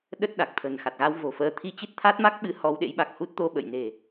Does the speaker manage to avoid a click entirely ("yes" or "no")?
yes